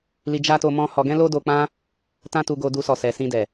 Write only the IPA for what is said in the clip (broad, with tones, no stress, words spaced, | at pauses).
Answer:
li˧d͡ʒa˦to˧ mɔ̃˦hɔ˧ ɡɛ̃˦lo˦do˧k͡pã˦ | tã˦tu˧ɡo˧du˧ sɔ˨sɛ˨sĩ˧dɛ˨